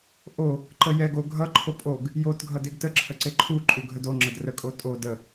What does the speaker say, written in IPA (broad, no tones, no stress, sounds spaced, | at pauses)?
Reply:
ʔ o | ǃ ə j ɛ ɡ o ɡʱ ʌ ǃʰ o pʼ o ɡ | j o t ɡʱ ʌ d e ɡ t ə ǁʰ ə ǀ e ǃʰ u ǃʼ u ɡʱ ə d o ŋ͡ǁ ə d r ə kʼ o tʼ o d ə